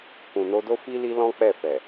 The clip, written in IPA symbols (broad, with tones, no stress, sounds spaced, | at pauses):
k ũ˨ n o˧ d o˦ f i˦ l i˦ l ɔ̃˦ k͡p ɛ˦˨ f ɛ˨